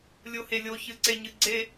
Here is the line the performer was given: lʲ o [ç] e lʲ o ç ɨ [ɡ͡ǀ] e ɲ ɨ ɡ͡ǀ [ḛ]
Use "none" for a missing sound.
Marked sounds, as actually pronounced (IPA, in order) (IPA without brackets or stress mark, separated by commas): h, ǀ, e